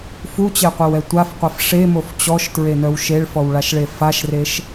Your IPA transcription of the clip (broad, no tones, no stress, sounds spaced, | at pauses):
f u t͡ɕ e qʷ e w ɛ tʷ a f qʷ ɛ f ʂ e m o f t͡ɕ ɔ ʃ t ɹ e n œ w ʃ e ɭ f ɔ w ɭ a ʃ ɭ e f a ʃ r e ʃ